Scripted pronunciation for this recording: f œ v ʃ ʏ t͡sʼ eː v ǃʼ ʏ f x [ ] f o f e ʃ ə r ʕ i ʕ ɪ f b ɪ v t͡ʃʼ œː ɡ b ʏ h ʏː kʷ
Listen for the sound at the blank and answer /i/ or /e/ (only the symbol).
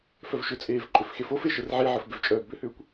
e